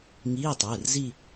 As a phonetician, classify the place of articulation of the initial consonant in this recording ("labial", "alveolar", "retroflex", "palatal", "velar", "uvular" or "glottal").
velar